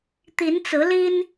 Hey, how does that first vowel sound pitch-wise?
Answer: rising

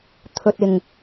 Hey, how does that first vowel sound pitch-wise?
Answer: low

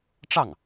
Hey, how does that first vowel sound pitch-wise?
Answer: falling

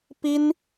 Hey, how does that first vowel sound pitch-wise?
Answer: high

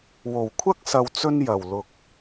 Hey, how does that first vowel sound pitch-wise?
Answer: low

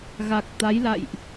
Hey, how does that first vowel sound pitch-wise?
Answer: low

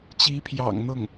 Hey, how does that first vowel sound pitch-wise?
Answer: rising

